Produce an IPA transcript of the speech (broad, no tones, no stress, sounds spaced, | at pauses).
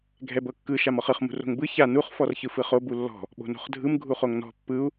ɡʱ ɛ b ɤ kː ɯ ʃ a m ɔ χ ɯ χ m ṳ r o̤ ŋ b ɯ ç a n u χ f ɔ r ç ɯ f ɯ χ o b u lː ɔ̤ | ɓ o̤ n o̤ χ dʱ ɯ m ɡʱ u χ o ŋ n ɔ̤ pː ɯ u̯